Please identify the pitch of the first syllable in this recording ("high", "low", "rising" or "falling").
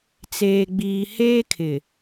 low